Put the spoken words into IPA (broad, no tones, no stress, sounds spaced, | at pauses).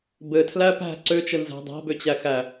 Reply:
b ɘ tʰ l æ p æ̤ ǀ ø t͡ʃ ɘ n z æ̤ dˤ a̤ b ø t͡ɕ æ x æ